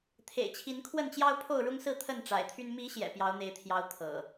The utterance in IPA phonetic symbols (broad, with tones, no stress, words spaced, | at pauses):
t̪ʰḛ˨˩ɪ̯t͡ɕʰi˨˦nkʰwə˥˨nt͡ɕjɑ˦ʊ̯ pʰo˥˨ʊ̯ɻʊ˦ŋsɹ̩˥˨ t̪ʰə˥˨nʈ͡ʂa̰˨˩ɪ̯t̪ʰy˦n mi˨˦ ɕjɛ̰˨˩pjɑ˨˦ʊ̯n̪e˨˦ɪ̯t̪ʰjɑ˨˦ʊ̯ t̪ʰɤ̰˨˩